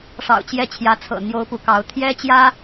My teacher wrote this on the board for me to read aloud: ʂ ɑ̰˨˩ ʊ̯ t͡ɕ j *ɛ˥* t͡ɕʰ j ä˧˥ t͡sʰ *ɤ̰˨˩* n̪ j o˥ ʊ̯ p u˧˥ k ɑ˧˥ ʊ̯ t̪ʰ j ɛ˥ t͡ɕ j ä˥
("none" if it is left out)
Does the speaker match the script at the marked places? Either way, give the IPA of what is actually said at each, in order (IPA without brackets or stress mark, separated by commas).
ɛ˥˩, ɤ̰˨˩